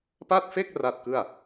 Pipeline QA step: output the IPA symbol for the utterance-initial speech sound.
p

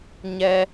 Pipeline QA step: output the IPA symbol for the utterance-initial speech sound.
ɲ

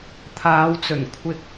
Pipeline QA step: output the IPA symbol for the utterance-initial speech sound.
t̪ʰ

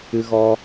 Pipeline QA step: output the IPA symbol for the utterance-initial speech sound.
ɨ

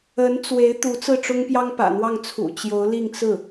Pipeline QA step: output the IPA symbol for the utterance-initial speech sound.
ə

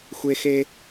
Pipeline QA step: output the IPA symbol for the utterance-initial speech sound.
xʷ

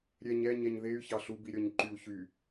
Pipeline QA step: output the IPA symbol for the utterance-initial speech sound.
ɾʲ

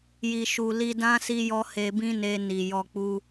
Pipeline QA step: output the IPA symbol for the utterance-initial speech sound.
j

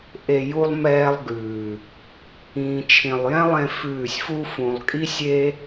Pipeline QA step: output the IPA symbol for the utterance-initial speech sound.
ʔ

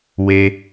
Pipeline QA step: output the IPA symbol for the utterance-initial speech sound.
w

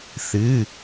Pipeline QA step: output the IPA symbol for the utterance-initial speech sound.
θ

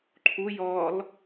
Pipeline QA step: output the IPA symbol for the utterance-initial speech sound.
ǃʰ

